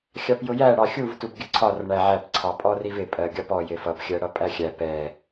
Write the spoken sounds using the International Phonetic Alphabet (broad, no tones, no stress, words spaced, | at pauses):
xʲɑpjʊjæ ɽɑxʲuv tubɡʲəǀʰɒr ɳæʕæp ǀʰɑpʼɔrivɪ pʼɜɡʲɒpɔ jɪfʌp xʲɜɽʌpʼæxʲæ pɛ